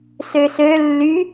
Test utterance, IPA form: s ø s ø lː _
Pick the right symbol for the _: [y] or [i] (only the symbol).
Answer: y